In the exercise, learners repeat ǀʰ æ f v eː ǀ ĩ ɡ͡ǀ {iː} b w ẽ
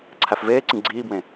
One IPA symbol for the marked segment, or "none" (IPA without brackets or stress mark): iː